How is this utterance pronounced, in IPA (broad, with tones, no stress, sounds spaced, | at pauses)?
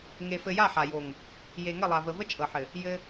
ŋ e˨ f ɘ˨ j a˦˨ ħ a˨ j o˨ ŋ | j e˨ ŋ ə˦˨ lˠ a˨ v ə˨ v ə˦ t͡ʃʼ ɤ˨ ħ ɘ˨ | j ɘ˦